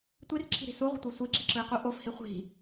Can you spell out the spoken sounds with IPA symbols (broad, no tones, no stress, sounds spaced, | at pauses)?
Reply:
tʷ i r ǁʰ i̤ ɾ i̤ s u ʁʷ i̤ tʷ e sʷ i ǁ i ǁ ɯ ɪ̯ q u ʔ o f h i χʷ i̤